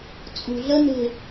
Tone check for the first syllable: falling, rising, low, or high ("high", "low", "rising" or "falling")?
low